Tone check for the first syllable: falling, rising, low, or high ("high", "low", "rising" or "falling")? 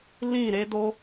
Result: falling